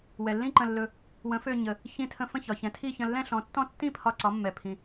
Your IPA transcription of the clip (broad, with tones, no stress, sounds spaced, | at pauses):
w ɛ˩ lː ĩ˥˩ ǃ ə̃˧˩ lː ɵ˧˩ | w ə̃˩˧ f ø˧˩ ɲ ə˩ | ç ĩ˧˩ tʰ ə̃˧˩ f ə̃˥˩ ç ɒ˩ ç ɛ̃˩˧ tʰ i˥˩ ç ə̃˧˩ lː ɛ̃˥˩ ɬ ɔ̃˩˧ tː ɔ̃˥˩ tː ĩ˥˩ pʰ ɒ˧˩ ǀ ɒ˩˧ mː ɛ˩ pʰ ĩ˩